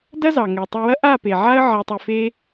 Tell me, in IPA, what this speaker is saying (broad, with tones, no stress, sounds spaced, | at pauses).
d ɐ˦ z ɑ˨ ŋ ɛ˨ tˤ ɛ˧ w ɐ˦ ʔ a˦˨ p e˨ ʕ a˦ ə̯ ʕ ɛ˧ tˤ ʏ˧ f e˦